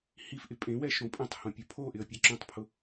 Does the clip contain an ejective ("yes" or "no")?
yes